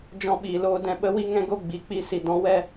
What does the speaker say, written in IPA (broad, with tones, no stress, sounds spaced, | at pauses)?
d͡ʒ ɔ̃˧ ɓ iː˨ l oː˧ d ɛ̃˧ ɓ ə˦ w i˦ ŋ ɛ̃˦ ɡ o˦ ɡ͡b i˨ k͡p i˧ s i˨ d ɔ̃˨˦ w ɛ˦